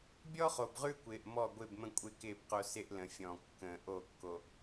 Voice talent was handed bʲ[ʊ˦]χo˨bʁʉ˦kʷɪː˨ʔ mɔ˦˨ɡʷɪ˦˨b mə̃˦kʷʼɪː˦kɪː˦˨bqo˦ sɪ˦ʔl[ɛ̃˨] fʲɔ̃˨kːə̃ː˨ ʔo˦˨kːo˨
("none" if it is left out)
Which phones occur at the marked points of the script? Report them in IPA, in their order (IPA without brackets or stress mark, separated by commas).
ɔ˦, ə̃˨